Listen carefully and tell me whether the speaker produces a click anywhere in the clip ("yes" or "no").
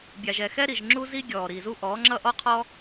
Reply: yes